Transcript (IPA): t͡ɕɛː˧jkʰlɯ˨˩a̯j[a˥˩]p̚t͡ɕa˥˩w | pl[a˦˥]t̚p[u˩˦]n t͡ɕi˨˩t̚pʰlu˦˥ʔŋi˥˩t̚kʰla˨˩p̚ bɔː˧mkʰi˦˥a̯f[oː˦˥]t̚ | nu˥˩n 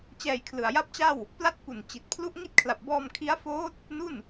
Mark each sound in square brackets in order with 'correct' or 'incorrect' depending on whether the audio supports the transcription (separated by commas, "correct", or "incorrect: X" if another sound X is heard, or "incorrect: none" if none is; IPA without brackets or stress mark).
correct, correct, incorrect: u˨˩, correct